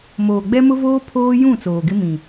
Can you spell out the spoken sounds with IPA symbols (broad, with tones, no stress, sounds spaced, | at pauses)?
m oː˨ ɡ͡b ɛ˦ m ʊ˦ v oː˦ pʰ oː˦ j ũ˦˨ t͡s oː˨ ɡ ɪ˦ m ĩ˨